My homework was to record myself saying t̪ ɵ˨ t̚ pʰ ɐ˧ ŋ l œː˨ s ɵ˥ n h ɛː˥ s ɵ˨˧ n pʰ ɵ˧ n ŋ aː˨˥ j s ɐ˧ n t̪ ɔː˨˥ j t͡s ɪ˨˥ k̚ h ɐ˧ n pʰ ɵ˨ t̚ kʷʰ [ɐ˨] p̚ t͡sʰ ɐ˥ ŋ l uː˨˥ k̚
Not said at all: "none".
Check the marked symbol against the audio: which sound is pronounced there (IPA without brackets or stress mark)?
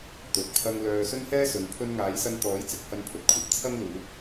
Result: ɐ˨